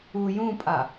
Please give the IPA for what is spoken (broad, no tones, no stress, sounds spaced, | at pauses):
u j ũ pʼ a